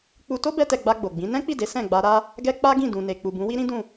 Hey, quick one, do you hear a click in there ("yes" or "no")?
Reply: no